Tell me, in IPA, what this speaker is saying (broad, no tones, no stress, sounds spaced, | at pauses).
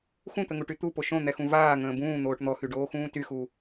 x ũ t̪ ə ŋ u ʈ y t̪ u p o ʃ õ n̪ ɛ x ũ v aː ŋ ə̃ː b ũː n̪ oː ʈ n̪ ɔ x y ɖ oː x ũː t y x u